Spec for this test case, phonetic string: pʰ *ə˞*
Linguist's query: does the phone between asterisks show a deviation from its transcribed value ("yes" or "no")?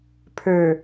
no